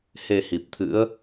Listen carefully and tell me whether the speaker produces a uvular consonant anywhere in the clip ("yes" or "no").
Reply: no